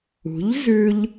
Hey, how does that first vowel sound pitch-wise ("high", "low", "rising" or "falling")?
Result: rising